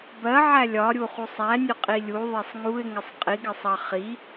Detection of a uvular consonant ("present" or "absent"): present